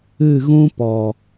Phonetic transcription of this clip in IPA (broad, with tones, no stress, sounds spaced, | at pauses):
ɨ˦˨ ɣ ũ˦ p ɔ˨